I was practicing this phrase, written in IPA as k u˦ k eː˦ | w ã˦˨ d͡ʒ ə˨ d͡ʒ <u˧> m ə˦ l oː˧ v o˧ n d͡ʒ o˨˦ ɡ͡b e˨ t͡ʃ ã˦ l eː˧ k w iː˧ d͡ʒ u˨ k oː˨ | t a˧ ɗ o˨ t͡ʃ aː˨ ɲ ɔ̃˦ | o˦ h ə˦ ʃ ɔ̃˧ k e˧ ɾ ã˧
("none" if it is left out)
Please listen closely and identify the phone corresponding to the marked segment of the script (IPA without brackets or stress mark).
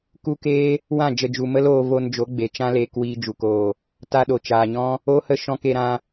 u˨